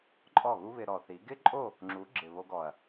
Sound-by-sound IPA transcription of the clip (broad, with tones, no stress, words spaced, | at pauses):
ǃʼɔ˦˨ɣu˦ βɪ˧ɾɔ˨θi˨˦ ɡɪ˦ǃʼo˦˨ | ŋ͡ǁu˨˦ ɡ͡ǁɪ˨βo˧ɡɔ˨ɐ̯